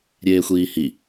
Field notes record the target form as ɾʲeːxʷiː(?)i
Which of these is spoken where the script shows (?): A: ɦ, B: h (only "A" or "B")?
B